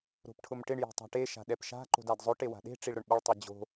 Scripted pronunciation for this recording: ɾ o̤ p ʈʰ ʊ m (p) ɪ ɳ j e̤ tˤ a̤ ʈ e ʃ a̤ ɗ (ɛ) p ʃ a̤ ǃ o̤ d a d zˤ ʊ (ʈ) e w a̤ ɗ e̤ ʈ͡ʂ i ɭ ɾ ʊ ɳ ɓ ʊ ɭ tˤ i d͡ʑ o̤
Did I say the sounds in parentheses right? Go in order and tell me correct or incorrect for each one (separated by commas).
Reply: incorrect, correct, correct